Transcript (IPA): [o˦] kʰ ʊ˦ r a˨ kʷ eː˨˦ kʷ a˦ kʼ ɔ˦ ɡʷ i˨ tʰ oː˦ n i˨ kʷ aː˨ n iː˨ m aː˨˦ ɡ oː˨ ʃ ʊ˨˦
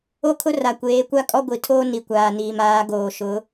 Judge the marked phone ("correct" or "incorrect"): correct